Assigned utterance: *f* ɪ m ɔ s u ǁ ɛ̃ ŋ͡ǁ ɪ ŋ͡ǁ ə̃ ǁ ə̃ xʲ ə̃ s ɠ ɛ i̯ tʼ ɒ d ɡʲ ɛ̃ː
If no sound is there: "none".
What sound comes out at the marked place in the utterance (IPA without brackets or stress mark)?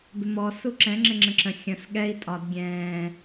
b